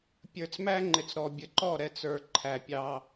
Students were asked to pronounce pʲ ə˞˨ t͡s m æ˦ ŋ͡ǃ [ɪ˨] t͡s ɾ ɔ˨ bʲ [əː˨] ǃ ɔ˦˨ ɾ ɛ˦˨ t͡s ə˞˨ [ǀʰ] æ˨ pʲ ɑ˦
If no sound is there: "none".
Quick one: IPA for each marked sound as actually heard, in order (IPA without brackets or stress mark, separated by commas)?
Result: ɪ˨, ə˨, ǃʰ